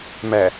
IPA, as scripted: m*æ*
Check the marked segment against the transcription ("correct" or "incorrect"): correct